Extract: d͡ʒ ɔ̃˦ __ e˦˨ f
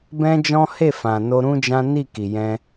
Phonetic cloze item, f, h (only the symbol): h